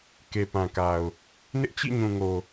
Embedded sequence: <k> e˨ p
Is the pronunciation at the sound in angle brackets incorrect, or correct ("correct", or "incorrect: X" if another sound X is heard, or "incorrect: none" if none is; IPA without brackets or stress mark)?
correct